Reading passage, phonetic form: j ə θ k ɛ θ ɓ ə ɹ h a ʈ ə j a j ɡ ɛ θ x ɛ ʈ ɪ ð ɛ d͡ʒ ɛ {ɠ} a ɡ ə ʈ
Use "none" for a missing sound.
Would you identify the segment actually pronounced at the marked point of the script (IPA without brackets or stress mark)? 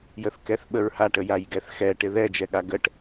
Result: ɠ